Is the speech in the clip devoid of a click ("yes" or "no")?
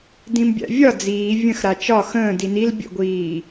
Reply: yes